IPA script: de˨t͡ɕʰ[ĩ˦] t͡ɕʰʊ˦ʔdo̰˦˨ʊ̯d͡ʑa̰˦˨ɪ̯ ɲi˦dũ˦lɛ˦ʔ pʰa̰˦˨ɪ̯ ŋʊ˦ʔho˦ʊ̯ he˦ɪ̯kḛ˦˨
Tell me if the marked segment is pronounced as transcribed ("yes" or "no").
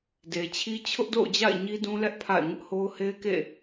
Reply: no